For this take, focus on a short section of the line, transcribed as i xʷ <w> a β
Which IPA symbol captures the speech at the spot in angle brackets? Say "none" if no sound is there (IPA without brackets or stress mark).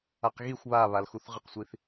β